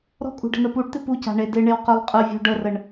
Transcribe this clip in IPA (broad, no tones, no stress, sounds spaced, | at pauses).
ɾ ɔ̤ kʼ ṳ ɖ ə̤ n ə p u ɖ t̪ ɪ p u c a̤ ɳ e d ɪ ɳ e w q ø lˠ qʼ ə vʲ ɔ̤ ɖ ə r ə ɳ